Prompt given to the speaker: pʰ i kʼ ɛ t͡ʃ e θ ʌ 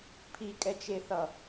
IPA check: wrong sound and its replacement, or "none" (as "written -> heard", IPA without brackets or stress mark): none